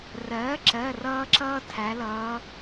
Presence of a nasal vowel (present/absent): absent